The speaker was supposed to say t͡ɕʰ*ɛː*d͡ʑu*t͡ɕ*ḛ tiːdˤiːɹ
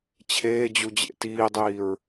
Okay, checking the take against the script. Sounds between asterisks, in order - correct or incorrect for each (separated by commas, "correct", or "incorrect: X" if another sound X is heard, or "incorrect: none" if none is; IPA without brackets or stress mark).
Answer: incorrect: eː, incorrect: d͡ʑ